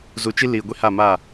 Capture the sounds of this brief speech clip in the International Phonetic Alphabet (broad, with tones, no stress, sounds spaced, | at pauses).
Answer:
z u˨ t͡ʃ i˦ l iː˨ ɡʷ i˦ h a˦˨ m a˦˨